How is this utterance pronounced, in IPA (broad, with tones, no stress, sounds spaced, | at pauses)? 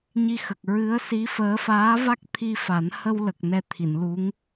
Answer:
ɲ i˧ x ə˨˩ k̚ ɹ ɨ˧˥ ə̯ s i˧˥ f əː˧˥ f aː˧˥ v a˦˥ k̚ t̪ʰ i˧ f a˨˩˦ n h ə˧ w l ə˨˩ k̚ n ɛ˧ t̪ʰ i˨˩˨ n l u˧˥ ŋ